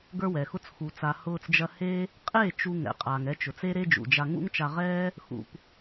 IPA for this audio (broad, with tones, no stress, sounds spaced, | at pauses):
ɡ ə˞˦ w ɛ˨ x ʊ˦ t͡s x u˨ t͡s a˨ h ʊː˧ t͡s d͡ʒ ɐ˧ h e˦ | qʼ e˦˨ t͡ʃ u˧ ŋ ɛ̰˨ qʼ aː˨ ŋ ɛ˧ t͡ʃ ʊ˨ t͡s e˦ ɾ e˦ d͡ʒ ṵ˨ d͡ʒ a˧ ŋ ṵ˦ ŋ t͡ʃ a˧ ʁ ɛː˦ | x ṵ˧ p